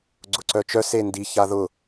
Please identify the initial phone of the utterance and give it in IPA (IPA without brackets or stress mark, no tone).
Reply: ɡ͡ǀ